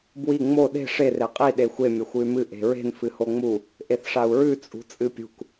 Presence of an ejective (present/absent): present